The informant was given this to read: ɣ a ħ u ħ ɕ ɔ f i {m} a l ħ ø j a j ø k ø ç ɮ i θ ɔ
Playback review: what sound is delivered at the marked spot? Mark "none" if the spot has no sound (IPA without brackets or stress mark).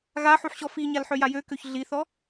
ɲ